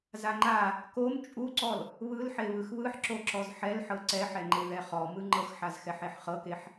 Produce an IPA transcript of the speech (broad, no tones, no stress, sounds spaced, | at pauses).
z a ŋ͡ǃ a | k o m t͡ʃʼ u ǀ ɔ l | β ɯ l ħ e β ɯ x β ɯ ħ ǁ o ǁ ɔ z ħ ɛ l ħ ɤ ǀ ɛ ħ ɛ ŋ͡ǃ e ð ɛ χ ɔ m ɯ ŋ͡ǃ ɤ x ħ a z x ɛ ħ e ħ χ ɤ k e ħ